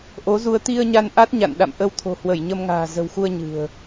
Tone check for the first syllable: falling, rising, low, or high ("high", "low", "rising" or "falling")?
rising